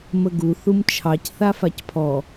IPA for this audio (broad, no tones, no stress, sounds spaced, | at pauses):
m ə ɡ u θ u m t͡ʃʰ ɑ c θ a f a c pʰ ɔ